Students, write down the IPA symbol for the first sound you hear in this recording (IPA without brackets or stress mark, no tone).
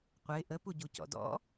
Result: qʷ